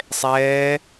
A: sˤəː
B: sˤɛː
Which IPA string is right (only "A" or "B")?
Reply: B